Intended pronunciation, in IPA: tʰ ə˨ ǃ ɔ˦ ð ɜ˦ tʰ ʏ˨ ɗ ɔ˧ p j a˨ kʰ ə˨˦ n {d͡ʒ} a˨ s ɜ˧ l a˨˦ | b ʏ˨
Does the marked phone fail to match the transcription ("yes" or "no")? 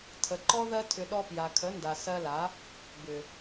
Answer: yes